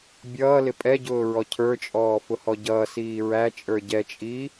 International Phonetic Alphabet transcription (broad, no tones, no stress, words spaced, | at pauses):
bʲʌː lɪpʼɛɟʊː ɹɔcʰə˞t͡ʃʼɔː fʊhɔɟʌːsiː ɹæt͡ʃʼə˞ ɟɛt͡ʃʼi